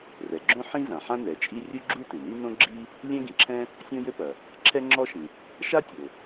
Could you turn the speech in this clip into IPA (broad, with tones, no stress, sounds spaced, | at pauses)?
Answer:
r ɛ˩ ɡ͡ǁ õ˥ ħ ĩ˥ z ã˩ ħ ã˥ n ɛ˩ t͡ʃʼ i˥ rʲ u˥ ɡ͡ǁ u˥ t ɨ˩ n i˥ n õ˥ ɡ͡ǁ i˥ | lʲ ɛ̃˥ ɡ ĩ˩ ǁʰ ɛ̃˥ | sʲ õ˥ j ɘ˥ p ɐ˩ | ǁʰ ɛ˥ ŋ͡ǁ ɔ˥ ʃ ĩ˩ | ʃ a˥ tʲ o˩